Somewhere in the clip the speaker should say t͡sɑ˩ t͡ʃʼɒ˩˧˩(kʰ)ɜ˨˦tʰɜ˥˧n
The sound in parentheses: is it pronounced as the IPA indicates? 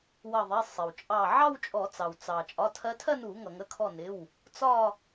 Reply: no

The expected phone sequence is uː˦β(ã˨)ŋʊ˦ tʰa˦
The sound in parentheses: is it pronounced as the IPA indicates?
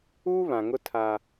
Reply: yes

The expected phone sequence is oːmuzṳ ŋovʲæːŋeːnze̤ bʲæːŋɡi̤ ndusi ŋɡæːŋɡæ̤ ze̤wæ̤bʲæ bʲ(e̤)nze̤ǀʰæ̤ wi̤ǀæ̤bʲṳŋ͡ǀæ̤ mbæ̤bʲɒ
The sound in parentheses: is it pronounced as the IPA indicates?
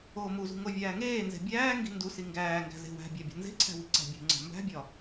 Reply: yes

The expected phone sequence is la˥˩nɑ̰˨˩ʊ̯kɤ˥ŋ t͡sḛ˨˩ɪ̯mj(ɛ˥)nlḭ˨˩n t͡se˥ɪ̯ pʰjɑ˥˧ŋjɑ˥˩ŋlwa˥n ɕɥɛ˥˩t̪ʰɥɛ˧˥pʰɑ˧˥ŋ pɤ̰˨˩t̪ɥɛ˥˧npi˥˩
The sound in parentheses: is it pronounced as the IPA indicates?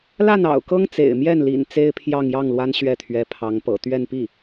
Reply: no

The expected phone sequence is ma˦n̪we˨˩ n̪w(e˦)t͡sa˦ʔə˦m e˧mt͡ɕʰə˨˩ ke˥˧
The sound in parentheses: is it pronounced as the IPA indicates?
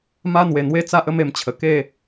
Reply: yes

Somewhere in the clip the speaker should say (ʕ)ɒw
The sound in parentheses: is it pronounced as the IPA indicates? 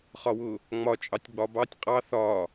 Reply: no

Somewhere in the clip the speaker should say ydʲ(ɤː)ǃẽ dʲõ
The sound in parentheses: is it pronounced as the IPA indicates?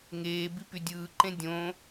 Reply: no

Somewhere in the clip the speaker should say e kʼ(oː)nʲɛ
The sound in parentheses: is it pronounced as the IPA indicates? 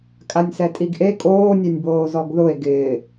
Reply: yes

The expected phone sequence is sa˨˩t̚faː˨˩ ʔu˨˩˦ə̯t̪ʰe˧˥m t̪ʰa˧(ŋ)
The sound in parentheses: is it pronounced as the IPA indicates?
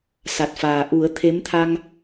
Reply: yes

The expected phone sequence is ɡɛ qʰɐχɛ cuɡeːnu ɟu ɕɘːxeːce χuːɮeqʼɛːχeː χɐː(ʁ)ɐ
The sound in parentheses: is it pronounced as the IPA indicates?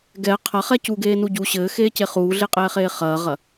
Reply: yes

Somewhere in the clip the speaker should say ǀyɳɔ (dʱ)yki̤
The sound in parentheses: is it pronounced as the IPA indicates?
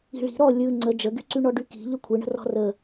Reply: no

